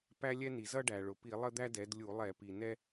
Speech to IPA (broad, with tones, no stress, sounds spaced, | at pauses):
p æ˥ lʲ ɛ˥ n i˩ z ʌ˥ ɖ æ˩ ɭ ʊ˩ p i˧˩˧ lˠ ə˥ d̪ æ˥ d ɛ˩˧ d lʲ u˧˩˧ lˠ ɛ˧˩˧ p i˩ n ɛ˥